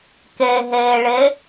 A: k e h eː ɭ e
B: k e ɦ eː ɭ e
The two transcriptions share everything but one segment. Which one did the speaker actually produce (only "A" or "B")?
B